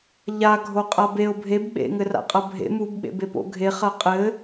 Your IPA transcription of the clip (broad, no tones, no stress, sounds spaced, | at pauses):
ʎ a ɡʱ o qʼ a b e ʊ̯ bʱ e b ɓ ḛ ŋ ɘ r a̰ qʼ ɐ bʱ ḛ m u b ɓ ḛ b e p o̰ ɡʱ e χ ɐ qʼ ɘ